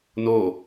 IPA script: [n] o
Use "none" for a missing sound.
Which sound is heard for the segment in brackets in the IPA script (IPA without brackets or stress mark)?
n